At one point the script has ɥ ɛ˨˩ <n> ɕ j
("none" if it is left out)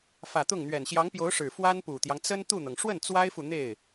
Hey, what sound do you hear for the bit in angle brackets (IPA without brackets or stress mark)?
n